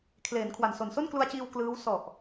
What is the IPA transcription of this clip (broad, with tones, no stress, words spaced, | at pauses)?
kʰleː˩˦nkʰwa˨˩nso˨˩n so˥˩nklu˧a̯t͡ɕiː˧w klɯː˦˥w sɔ˨˩ʔ